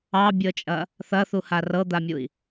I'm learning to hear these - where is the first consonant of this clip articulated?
lips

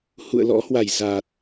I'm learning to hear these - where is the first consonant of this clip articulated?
throat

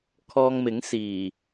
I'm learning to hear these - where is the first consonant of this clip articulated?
velum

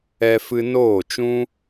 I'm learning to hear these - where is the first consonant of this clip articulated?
lips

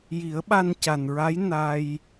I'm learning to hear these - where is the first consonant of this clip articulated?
palate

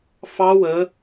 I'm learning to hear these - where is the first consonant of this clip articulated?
lips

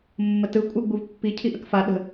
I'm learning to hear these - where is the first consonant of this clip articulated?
lips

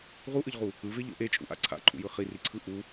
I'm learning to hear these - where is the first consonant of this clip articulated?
uvula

